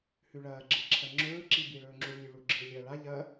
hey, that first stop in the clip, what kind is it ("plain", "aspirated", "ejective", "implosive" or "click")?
click